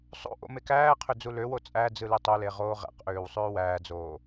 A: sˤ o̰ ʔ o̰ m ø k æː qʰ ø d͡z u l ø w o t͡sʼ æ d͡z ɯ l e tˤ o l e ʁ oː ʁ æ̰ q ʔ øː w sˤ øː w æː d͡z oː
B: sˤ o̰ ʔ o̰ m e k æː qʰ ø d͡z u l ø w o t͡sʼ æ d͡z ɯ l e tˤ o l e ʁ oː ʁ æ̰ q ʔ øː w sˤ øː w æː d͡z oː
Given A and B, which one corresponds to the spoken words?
B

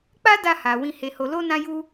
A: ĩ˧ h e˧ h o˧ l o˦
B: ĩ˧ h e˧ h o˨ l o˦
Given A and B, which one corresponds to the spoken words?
A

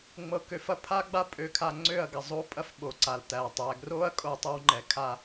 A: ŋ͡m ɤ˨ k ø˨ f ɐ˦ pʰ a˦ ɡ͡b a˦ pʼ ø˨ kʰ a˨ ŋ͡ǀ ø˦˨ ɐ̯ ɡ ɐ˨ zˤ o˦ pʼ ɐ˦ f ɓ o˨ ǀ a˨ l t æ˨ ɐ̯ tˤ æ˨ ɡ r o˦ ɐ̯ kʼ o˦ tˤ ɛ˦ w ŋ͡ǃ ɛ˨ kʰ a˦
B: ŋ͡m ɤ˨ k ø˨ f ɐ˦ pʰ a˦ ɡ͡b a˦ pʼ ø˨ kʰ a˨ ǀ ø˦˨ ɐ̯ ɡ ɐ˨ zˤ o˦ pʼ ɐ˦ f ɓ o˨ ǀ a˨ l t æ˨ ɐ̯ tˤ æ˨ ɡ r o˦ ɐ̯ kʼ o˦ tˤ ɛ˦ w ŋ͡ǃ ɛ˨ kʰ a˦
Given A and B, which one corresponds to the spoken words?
A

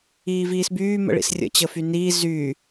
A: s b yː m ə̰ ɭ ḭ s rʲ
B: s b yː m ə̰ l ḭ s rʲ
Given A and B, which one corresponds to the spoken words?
A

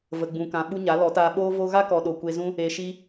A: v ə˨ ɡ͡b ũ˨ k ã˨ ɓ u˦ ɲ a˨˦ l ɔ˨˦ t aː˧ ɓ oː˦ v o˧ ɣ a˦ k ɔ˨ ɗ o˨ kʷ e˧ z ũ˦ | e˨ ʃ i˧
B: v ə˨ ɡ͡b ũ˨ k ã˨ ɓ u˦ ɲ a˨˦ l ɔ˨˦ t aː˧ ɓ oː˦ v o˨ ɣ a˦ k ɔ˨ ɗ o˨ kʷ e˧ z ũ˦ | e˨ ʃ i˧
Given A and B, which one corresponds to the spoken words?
A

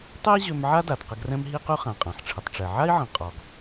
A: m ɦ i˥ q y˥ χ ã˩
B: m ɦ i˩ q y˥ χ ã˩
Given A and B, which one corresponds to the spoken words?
A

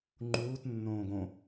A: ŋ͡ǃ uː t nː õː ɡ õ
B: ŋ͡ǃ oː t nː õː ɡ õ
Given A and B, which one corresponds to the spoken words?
A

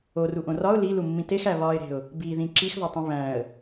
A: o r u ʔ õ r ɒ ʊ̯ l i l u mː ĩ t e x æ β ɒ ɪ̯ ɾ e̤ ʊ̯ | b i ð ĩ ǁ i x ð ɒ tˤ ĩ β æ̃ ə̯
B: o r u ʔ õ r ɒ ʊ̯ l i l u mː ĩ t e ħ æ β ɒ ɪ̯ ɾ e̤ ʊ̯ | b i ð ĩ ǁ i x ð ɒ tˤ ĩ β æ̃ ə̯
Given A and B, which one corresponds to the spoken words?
A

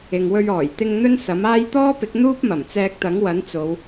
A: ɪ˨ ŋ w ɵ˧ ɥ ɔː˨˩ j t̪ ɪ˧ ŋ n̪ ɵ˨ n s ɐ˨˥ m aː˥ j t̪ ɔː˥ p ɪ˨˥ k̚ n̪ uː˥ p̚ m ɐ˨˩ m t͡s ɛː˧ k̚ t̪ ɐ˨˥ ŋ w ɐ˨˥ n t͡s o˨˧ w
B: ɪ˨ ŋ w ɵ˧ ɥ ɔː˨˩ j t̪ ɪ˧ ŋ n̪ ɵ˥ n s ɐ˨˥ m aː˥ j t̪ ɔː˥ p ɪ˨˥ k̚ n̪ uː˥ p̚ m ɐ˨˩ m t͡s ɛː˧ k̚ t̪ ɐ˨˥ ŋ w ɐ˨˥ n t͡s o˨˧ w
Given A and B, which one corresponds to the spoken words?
B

